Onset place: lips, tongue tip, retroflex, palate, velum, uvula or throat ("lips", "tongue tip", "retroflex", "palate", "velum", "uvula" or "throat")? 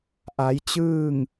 throat